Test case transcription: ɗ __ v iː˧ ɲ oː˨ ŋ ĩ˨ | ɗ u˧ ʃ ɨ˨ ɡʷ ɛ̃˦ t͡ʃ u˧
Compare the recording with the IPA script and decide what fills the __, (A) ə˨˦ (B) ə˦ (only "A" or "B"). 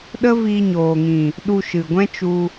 B